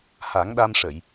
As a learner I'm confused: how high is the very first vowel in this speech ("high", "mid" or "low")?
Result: low